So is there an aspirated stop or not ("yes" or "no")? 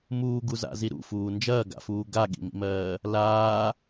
no